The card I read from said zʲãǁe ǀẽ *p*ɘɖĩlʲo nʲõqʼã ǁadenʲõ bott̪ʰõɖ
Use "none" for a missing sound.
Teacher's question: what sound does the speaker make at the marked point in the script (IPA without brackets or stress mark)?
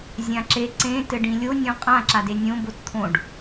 t